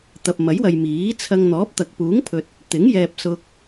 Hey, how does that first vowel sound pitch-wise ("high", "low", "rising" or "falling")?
low